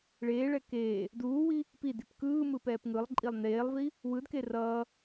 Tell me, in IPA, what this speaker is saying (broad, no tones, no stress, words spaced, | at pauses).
ɭeːɭɛ keː | duːwi | pidip kɯːmɯpɛːp ŋɯlˠǃʼilˠ neːlˠvi | wɯdke rʌː